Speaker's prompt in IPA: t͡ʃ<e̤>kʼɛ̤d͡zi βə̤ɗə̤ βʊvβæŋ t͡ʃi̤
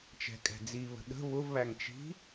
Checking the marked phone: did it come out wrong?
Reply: yes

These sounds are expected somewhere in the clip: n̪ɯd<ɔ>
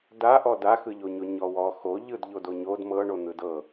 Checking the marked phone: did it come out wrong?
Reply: yes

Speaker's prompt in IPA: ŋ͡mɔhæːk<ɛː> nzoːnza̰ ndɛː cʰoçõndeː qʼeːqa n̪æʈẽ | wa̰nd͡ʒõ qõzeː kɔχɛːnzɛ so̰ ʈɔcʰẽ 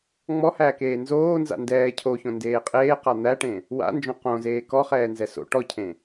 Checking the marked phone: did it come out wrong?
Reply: yes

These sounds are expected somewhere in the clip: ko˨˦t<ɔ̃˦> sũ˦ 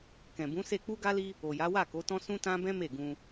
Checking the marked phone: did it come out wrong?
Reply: no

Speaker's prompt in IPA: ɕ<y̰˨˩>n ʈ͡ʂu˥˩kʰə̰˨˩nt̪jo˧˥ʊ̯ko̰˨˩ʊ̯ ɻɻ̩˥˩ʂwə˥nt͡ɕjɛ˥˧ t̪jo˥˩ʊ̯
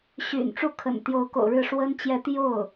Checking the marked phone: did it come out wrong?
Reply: no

